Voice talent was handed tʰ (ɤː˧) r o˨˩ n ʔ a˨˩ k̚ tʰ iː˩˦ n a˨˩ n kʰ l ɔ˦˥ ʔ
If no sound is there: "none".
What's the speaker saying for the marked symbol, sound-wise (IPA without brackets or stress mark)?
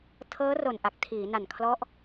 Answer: ɤː˦˥